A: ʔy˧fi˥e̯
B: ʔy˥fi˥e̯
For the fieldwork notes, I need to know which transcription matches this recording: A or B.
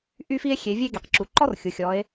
B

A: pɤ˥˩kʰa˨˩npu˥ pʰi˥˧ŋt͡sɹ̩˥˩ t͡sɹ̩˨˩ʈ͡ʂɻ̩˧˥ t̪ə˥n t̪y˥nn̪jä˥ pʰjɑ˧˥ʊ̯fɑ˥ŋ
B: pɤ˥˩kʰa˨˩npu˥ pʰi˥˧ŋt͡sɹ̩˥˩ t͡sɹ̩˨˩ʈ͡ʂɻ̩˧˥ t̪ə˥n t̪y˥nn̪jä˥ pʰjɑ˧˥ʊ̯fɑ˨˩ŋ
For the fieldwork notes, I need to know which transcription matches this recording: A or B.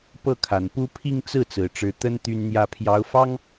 A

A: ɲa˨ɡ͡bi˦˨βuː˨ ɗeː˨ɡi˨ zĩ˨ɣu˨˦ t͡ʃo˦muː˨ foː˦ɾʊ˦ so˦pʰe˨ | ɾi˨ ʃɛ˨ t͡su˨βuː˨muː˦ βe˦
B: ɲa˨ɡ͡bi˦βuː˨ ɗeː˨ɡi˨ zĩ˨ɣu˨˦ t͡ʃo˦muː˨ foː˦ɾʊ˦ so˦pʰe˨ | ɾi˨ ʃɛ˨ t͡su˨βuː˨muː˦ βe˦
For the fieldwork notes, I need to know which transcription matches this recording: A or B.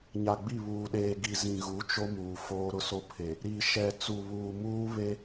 A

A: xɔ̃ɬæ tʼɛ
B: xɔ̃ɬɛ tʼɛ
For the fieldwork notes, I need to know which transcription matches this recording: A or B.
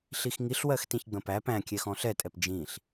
B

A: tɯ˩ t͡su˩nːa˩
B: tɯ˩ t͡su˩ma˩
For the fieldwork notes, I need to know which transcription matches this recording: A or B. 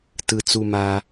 B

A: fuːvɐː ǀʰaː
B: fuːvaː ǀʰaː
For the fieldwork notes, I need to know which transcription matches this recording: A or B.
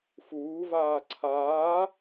B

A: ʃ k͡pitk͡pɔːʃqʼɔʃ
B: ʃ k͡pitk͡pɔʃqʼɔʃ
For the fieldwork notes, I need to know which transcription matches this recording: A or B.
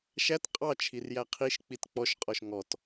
B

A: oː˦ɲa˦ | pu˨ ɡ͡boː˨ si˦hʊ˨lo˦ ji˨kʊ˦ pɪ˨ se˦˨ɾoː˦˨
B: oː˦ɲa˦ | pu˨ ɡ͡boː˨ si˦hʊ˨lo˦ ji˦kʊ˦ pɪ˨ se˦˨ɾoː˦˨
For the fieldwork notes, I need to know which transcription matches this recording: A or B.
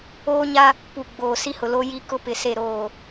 B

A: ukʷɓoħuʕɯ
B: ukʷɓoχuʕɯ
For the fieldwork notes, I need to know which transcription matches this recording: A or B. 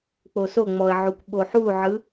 A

